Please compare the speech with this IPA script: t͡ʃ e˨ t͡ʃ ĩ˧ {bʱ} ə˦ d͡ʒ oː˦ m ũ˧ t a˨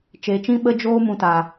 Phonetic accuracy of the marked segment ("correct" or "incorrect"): incorrect